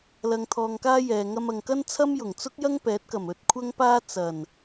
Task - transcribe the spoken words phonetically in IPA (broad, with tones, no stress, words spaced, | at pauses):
lɐ˧ŋt̪ʰɔː˧ŋkaː˥jɛː˨ ŋɐ˧mɐ˨ŋkɐ˥n t͡sʰɐ˥mjʊ˨˩ŋt͡sʊ˥k̚jɐ˥ŋ pɛː˨˥t̚kɐ˨˩m ɵ˧t̚kʷʰɐ˥ŋpaː˥ t͡sɐ˨˩n